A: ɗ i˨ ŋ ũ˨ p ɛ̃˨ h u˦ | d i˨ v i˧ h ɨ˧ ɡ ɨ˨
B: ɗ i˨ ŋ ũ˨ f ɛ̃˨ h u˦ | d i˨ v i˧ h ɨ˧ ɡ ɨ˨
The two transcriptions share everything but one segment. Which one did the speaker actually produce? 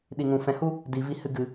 B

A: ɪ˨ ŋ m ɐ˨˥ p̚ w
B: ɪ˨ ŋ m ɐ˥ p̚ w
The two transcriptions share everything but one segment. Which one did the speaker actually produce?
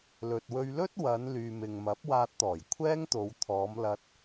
A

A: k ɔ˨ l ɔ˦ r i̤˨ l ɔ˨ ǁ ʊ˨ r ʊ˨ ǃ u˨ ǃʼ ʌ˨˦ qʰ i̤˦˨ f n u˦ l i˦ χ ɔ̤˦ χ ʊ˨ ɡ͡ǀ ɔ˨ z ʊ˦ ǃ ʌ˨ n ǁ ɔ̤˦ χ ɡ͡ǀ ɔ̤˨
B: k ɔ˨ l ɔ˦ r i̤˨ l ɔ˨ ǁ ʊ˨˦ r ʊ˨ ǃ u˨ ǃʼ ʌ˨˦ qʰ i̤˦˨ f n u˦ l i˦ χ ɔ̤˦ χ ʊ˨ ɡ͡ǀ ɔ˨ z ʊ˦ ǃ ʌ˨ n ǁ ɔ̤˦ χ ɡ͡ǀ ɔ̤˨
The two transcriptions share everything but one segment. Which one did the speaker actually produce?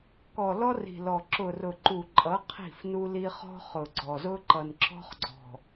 A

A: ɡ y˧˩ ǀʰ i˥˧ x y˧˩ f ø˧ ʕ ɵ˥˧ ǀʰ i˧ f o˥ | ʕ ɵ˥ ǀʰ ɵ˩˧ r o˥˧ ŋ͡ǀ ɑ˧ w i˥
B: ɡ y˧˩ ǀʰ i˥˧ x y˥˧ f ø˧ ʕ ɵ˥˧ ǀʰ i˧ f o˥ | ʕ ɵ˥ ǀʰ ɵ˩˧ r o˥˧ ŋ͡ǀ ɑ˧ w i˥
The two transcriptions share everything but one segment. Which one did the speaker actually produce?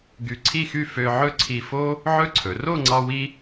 B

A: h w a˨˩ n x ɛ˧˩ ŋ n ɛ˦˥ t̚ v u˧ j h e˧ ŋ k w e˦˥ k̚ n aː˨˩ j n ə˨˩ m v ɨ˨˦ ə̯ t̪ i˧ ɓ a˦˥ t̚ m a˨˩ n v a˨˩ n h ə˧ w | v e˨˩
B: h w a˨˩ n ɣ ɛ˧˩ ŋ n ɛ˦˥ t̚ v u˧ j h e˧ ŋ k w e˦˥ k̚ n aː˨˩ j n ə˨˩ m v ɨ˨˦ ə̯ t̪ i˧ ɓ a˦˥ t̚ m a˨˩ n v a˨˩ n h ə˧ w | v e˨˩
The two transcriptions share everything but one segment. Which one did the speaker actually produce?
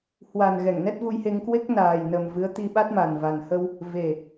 B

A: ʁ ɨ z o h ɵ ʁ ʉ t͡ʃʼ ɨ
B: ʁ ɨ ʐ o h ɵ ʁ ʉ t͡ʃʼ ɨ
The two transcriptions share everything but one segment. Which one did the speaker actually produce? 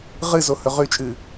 A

